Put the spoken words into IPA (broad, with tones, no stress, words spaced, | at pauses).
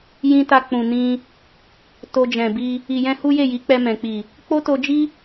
jĩ˧ta˧ k͡pũ˨nĩ˧ | to˧d͡ʒɛ̃˨bi˧ | i˨jɛ̃˧ hu˦je˦˨ ji˨˦k͡pɛ˧mɛ̃˨k͡pi˨ | k͡po˦to˧d͡ʒi˦